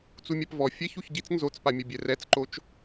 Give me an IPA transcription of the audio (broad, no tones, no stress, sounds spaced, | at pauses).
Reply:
t͡s u mʲ a p v ɔ fʲ ɛ ç u ç ɟ i t͡s n z o t͡s p a mʲ ɐ bʲ ɛ r ɛ t͡s ǃ o t͡ʃ